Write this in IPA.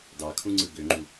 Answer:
dɑkʰũŋ͡ǀɯ ɡøŋ͡ǃu

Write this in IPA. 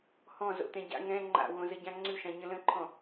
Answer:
hɔ̃zo̰t̪ɛ̃ ɟa̰ ŋɛ̃ ŋ͡ǃa̰wõzəɟã ŋ͡ǀʉʃãɲə̃ lə̃ǃʰɔ̃

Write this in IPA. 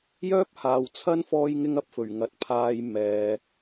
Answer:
jœː˥p̚haː˨wt͡sʰɐ˥n fɔː˥jŋɪ˥ŋɐ˧p̚fɵ˨˩ɥ ŋɐ˨t̚pʰaː˧j mɛː˨

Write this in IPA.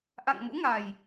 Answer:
ʔa̰˧˨ŋ mṵ˧˥ŋa˨˩j

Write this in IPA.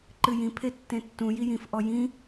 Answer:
ǃɨjĩ pʰetːẽtːũ jijĩf ʔɔjĩ

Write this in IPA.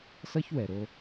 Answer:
sʌ˦çwɛ˨ɾo˧

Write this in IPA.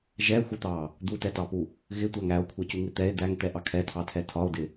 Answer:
ʒɛxʷɪt̪ɑ | d̪utɛtɑpu | ɣɪtʷæŋ æo̯kʷʰɛcuŋɪ t̪ɛe̯ d̪æŋt̪ɛʔɑ kʰɛtʰɑtʰɛ tʰɒo̯dɪ

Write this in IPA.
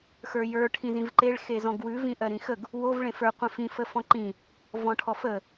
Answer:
xə˞jə˞ ʈʰĩzĩvǃeɭ xezɔ̃ɡwʉ vĩʔɜɾĩxəɡ | wov ɭẽfə˞ qʷẽfĩ fəfɔ̃ǃĩ | vɔ̃ʈʰɔfə

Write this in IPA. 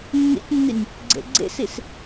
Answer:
nːḭtʲnːinʲ | ɡ͡ǀḛɡ͡ǀḛsis

